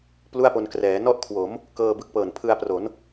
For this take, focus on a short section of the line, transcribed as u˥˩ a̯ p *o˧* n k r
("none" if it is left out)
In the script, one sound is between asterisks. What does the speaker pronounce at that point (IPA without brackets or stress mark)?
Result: o˧